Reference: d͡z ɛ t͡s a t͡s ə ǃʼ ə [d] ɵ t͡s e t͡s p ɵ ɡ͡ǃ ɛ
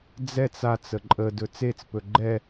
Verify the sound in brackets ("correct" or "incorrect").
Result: correct